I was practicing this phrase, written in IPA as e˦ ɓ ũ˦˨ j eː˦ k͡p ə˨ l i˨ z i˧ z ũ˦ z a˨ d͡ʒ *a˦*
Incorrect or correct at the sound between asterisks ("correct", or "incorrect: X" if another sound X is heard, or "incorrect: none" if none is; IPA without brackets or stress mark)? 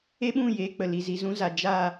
incorrect: a˦˨